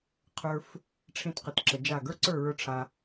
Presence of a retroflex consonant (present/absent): present